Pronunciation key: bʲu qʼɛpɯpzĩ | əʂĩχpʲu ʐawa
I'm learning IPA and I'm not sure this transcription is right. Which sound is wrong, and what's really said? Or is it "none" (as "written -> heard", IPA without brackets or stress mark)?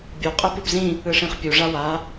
ə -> ɯ